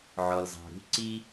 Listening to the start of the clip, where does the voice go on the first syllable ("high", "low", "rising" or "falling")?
low